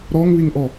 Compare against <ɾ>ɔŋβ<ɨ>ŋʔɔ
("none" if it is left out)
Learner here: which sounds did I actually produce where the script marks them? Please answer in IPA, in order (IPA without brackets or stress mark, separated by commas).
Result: ɾ, i